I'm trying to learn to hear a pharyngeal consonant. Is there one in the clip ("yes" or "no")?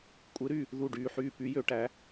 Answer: yes